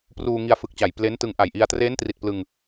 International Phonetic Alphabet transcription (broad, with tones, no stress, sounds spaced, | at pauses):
p r uː˧ ŋ i˧ a̯ f ɯ˨˩ k̚ t͡ɕ a˨˩ j p l e˦˥ n t ɯ˧ ŋ ʔ a˨˩ j ʔ i˧ a̯ t r eː˦˥ n t r i˨˩ t̚ p l ɯ˧ ŋ